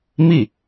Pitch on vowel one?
falling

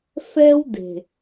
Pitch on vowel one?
high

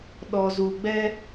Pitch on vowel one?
low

